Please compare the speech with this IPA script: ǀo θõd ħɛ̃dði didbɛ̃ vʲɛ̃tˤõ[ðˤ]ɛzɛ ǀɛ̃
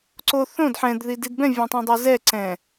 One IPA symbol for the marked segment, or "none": dˤ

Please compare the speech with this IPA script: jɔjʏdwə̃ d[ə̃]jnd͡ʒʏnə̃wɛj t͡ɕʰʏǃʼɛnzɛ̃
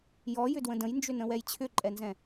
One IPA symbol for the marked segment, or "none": ə̃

